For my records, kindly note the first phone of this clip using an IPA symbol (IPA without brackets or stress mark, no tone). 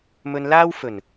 m